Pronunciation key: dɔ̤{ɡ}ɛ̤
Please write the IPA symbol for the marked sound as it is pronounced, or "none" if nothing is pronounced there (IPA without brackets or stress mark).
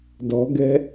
ɡ